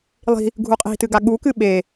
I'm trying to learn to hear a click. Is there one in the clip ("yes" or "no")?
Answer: no